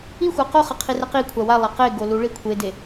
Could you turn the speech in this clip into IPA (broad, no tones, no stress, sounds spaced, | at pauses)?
i xʷ a q o χ ʌ qʰ i r ɛ q i kʷʰ a w a lˠ a q e ɡ o l u ɭ i kʷʰ e d e